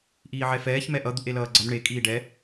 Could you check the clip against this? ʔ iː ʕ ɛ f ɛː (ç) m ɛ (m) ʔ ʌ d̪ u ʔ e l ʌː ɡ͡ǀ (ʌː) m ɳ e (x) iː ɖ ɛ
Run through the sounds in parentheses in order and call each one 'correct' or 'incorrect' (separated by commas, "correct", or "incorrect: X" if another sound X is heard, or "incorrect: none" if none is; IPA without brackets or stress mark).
correct, incorrect: none, incorrect: ʌ, incorrect: kʼ